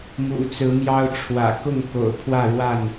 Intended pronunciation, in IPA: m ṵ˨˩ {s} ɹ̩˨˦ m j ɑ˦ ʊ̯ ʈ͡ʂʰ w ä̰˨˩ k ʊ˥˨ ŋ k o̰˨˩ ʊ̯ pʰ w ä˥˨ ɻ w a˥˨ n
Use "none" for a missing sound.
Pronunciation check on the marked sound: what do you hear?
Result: t͡s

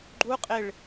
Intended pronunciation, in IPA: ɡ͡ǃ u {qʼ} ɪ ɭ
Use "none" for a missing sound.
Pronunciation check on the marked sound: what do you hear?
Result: qʼ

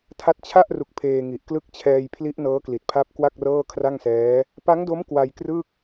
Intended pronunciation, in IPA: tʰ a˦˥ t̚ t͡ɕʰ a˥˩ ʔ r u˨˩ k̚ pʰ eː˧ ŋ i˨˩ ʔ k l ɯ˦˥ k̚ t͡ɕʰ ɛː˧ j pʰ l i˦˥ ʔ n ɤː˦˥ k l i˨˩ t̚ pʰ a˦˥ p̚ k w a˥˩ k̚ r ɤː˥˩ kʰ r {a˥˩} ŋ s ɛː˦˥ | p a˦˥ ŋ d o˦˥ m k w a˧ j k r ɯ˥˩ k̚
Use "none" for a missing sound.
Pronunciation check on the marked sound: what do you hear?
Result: a˥˩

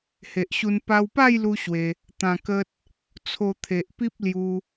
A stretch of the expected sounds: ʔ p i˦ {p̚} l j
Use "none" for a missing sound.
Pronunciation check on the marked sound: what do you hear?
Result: p̚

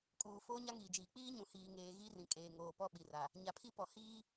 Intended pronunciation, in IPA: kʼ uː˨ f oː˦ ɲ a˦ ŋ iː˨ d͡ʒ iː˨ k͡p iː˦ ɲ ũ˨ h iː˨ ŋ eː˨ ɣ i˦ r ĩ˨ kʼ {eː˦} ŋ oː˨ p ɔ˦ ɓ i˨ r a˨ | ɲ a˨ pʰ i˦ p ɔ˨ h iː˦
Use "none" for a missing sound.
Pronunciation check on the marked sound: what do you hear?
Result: eː˨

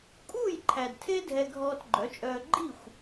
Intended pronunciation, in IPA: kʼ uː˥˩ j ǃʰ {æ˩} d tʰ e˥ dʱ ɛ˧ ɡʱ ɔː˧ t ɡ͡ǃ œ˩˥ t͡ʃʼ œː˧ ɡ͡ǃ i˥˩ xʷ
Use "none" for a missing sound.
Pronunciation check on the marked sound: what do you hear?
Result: æ˩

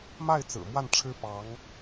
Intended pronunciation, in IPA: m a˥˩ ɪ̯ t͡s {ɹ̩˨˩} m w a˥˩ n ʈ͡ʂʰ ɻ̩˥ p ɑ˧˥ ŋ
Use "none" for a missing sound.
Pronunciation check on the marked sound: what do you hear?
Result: ɹ̩˨˩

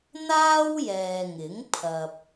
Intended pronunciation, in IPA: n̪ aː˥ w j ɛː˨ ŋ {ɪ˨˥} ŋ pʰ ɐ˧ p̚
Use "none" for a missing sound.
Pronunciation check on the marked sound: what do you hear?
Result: ɪ˨˥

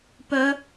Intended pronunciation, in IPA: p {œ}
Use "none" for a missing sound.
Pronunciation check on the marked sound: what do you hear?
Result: œ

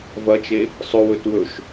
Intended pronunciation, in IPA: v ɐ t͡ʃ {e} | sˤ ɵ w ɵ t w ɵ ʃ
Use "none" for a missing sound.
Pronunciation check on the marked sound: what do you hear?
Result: e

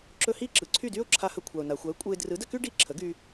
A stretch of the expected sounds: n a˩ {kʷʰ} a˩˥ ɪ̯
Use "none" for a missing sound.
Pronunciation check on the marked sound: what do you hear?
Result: xʷ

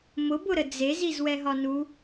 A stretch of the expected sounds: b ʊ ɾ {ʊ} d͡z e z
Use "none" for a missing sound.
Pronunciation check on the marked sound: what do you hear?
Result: ə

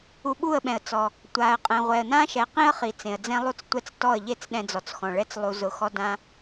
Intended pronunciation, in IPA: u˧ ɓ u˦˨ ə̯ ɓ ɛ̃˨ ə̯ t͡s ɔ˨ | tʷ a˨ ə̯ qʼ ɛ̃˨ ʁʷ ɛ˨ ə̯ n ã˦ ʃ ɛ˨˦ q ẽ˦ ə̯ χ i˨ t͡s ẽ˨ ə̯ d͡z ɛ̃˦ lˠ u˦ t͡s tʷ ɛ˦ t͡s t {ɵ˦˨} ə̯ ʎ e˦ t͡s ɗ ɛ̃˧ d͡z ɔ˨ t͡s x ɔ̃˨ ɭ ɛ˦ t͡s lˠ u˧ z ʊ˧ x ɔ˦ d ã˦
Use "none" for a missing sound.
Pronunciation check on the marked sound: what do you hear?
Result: ɔ˦˨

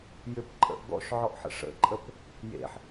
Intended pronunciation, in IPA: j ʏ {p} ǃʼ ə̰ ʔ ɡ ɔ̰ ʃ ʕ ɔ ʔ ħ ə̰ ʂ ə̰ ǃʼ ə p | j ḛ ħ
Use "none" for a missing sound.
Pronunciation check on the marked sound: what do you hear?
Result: p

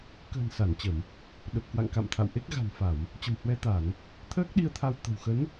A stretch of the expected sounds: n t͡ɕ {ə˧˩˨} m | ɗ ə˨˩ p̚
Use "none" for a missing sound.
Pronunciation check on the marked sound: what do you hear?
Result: ə˧˩˨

